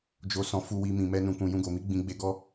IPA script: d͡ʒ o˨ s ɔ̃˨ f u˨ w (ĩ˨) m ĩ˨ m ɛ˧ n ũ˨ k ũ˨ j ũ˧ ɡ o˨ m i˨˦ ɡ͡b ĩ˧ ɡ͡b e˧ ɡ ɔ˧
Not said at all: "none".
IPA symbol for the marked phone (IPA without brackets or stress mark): i˨